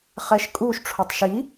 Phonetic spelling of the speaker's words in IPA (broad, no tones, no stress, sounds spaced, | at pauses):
χ ɛ ʃ kʼ u ʃ ʈ͡ʂʰ o tˤ ʃ i